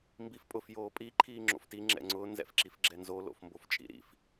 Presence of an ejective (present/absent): present